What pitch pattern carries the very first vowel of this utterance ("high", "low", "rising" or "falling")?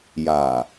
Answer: low